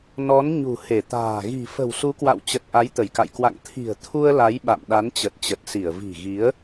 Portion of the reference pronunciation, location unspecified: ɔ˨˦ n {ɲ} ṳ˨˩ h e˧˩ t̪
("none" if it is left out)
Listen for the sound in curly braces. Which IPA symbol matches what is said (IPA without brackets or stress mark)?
ɲ